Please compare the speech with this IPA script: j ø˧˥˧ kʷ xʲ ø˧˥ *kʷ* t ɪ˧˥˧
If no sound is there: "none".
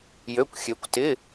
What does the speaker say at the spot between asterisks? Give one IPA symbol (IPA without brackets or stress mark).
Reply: kʷ